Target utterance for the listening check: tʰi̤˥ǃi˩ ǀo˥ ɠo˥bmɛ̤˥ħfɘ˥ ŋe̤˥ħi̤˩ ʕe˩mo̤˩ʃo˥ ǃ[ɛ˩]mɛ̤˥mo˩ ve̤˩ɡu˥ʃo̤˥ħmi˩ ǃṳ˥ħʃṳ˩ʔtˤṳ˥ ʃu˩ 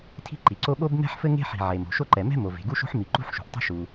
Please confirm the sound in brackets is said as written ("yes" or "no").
yes